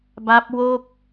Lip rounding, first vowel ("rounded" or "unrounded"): unrounded